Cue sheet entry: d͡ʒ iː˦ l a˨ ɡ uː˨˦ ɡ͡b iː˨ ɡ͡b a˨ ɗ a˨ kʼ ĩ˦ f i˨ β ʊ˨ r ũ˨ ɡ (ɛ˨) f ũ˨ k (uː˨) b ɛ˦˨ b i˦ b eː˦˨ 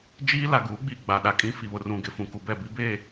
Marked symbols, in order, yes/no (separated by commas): no, no